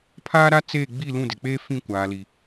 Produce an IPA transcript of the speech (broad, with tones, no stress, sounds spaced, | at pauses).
pʰ aː˦ ɾ a˦ t͡s eː˦˨ ɡ͡b i˦˨ l ũ˦˨ d ɪ˨ k͡p eː˦ f ĩ˦˨ kʷ aː˨ l i˨